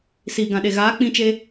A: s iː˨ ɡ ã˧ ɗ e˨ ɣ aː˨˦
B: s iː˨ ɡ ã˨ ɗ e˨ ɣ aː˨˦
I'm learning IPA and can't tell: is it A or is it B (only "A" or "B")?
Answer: B